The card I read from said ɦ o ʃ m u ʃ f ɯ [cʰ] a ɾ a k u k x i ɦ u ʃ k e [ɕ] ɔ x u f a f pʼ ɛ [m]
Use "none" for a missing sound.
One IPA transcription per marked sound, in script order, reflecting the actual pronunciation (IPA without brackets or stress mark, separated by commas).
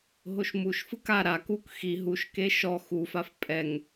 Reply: k, ʃ, ŋ